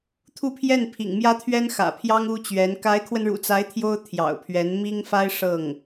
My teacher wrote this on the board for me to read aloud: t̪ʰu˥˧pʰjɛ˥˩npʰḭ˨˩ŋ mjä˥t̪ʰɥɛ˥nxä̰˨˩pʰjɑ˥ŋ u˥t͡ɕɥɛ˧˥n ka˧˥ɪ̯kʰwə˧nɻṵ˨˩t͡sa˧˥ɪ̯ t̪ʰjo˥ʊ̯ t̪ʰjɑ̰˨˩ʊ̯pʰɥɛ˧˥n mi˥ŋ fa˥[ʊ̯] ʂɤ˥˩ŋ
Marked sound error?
yes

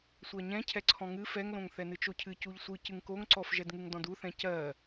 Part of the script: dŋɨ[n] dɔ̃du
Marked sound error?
yes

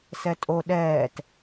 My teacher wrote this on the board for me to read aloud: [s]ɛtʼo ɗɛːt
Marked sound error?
no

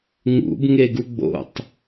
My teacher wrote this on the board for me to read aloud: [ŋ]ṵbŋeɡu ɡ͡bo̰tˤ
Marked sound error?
no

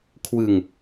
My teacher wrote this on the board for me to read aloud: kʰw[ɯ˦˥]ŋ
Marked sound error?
yes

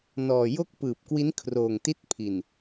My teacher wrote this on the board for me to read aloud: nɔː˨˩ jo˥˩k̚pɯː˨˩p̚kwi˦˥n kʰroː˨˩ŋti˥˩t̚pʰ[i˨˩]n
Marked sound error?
no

